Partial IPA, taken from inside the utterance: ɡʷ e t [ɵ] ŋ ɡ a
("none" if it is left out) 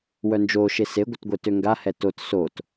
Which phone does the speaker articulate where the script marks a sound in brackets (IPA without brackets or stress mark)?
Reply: ø